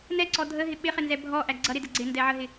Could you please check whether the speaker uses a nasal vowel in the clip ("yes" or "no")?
no